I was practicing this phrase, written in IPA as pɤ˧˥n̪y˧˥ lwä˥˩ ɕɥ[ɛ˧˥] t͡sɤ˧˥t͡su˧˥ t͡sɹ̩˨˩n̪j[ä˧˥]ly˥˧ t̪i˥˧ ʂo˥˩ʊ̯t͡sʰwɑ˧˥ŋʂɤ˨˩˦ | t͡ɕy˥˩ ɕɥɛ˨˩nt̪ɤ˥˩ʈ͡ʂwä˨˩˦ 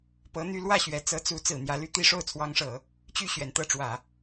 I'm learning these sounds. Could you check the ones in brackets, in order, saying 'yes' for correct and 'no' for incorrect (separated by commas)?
yes, yes